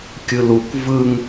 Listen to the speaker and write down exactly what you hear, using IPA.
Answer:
kʲɯluk vɯŋ

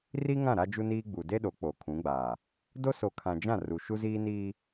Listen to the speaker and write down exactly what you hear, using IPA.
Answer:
ri˦ŋã˦˨ ɾa˦d͡ʒu˦niː˦ ɡ͡bu˨de˦ɗo˨˦ k͡po˨kʰũ˨˦ɡ͡baː˨ | do˦so˨kʰã˨d͡ʒã˦˨ ru˨ʃu˦ziː˦ niː˦

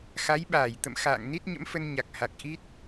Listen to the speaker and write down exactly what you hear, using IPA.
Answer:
xa˨˦jɓaː˧˩j t̪ə̰˧˨m xa̰ː˧˨ŋ ni˦˥t̚ɲə̰˧˥mfə˧n ɲa˨˩k̚ha˨˩k̚ ʔi˦˥t̚

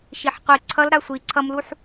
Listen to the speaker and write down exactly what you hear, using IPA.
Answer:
ʃiħqʷi ǀʰʌl ɾasʷi ǀʰʌmluħ

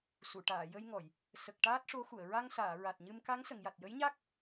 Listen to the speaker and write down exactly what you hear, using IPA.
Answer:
su˨˩˨ʈaː˨˩˨jə˧jŋɔ˨˩˨j | sə˨˩k̚ ʈaː˦˥t̚ʂo˧˥xu˨˩˨ə̯ ɹa˧ŋsaː˨˩˨ ɹa˨˩t̚ɲɨ˧mka˧˥ŋ sə˨˩˨ŋja˨˩t̚jə˧˥jɲa˦˥k̚

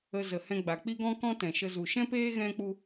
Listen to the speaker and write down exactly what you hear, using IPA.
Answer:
ə˧zə˨hɛ̃˧ ɡ͡ba˨k͡pi˦ɡɔ̃˦ kɔ̃˦tɛ̃˨ʃə˧ zu˨ʃɛ̃˦peː˦ ɣɛ̃˦k͡pu˦

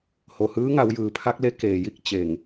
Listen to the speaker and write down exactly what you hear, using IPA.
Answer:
ho˩hɯː˧˥ŋa˩˧w jɯː˩pʰa˧˥k̚le˧˥ keː˩ji˥˨k̚ t͡ɕe˧˩ŋ

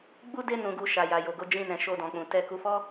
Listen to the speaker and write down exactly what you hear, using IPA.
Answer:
ɡ͡bu˦de˦ nũ˧ɡu˧ ʃa˨ja˨jo˨ɡo˧ d͡ʒĩ˧nɛ̃˨ ʃo˧dɔ̃˨k͡pũ˨ tɛ˧ ku˧fɔ˦

